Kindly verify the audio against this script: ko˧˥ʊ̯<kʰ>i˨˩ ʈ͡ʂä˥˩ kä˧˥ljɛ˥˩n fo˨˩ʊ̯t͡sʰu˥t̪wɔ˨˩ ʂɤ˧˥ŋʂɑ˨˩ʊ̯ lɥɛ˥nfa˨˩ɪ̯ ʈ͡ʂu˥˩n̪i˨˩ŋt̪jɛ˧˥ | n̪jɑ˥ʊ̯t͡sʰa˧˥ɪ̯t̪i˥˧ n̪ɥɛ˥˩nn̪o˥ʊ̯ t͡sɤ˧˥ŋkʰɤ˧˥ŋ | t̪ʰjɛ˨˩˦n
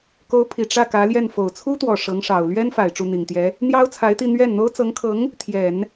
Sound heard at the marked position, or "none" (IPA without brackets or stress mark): pʰ